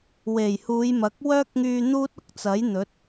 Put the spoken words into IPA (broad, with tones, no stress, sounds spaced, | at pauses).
w e˨˩ j h uː˨˧ j m ɐ˨˥ k̚ w œː˥ k̚ ŋ yː˧ n̪ uː˥ t̚ ʊ˥ k̚ t͡s ɐ˨˥ j n̪ ɵ˨˥ t̚